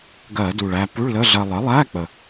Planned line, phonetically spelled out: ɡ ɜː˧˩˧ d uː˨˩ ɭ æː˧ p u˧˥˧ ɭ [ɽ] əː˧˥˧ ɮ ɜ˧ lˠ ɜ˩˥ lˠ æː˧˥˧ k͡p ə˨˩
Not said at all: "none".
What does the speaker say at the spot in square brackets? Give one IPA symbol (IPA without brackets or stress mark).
l